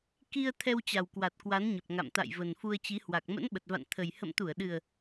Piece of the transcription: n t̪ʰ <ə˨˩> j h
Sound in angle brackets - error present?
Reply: no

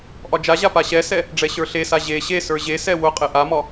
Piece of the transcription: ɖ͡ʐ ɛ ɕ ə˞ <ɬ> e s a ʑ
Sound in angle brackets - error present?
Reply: no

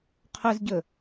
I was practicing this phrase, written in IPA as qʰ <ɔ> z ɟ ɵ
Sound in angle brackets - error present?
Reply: yes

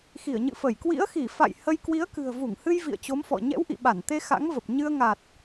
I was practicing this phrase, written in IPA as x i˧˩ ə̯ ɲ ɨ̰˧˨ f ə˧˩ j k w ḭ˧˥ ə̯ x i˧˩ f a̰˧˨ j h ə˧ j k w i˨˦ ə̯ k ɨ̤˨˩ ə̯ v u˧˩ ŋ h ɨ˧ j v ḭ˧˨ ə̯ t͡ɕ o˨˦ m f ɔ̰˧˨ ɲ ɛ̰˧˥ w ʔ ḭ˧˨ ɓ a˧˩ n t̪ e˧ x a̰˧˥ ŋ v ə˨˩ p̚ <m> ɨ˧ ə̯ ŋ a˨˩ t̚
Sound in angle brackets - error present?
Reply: yes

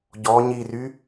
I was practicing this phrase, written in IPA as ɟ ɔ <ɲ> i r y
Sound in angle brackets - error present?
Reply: no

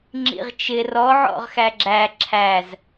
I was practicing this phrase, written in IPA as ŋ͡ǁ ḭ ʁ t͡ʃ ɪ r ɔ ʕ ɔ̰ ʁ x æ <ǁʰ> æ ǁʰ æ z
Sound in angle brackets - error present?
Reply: yes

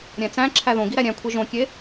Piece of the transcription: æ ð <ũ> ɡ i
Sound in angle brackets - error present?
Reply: yes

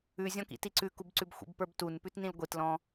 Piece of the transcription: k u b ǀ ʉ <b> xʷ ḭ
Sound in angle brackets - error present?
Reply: no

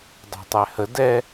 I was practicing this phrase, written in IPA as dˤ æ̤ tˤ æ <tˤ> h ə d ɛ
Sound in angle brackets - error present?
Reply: yes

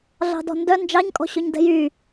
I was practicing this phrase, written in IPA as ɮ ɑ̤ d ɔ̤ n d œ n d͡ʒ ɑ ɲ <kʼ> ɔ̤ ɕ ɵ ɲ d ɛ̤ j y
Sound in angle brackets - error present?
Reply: no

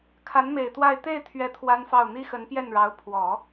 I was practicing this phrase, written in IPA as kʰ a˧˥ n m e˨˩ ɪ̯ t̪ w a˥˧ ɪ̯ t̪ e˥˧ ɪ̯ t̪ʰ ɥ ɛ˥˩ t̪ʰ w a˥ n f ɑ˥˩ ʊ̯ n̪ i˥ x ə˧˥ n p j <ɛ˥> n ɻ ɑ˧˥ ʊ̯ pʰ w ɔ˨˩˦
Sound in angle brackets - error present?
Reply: yes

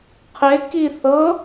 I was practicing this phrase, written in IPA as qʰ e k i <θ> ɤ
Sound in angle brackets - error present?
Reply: no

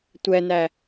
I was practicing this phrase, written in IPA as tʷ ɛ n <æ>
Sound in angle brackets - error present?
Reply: no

